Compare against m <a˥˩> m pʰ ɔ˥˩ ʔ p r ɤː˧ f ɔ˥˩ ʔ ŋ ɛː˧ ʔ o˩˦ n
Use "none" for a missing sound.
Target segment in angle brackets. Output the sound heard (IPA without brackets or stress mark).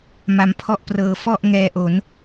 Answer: a˧